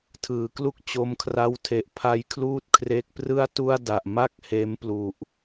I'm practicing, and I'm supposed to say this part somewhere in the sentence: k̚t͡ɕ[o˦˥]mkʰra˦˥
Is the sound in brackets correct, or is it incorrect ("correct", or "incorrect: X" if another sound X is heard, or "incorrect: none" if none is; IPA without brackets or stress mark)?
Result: incorrect: o˧